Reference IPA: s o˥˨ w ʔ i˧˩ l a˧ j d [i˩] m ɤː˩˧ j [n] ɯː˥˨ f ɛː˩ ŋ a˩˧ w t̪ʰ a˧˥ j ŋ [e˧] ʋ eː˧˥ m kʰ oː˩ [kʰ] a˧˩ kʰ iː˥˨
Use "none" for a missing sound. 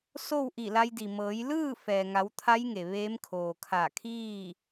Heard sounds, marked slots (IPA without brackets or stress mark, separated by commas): i˩, l, e˩, kʰ